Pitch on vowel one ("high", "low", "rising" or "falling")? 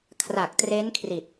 low